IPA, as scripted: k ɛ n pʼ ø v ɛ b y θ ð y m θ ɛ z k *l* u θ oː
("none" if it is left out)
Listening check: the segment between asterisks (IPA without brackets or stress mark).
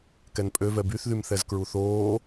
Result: ɹ